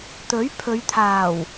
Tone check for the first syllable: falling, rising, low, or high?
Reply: rising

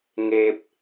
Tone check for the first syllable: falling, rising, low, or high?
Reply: low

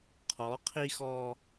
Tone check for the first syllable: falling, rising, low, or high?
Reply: rising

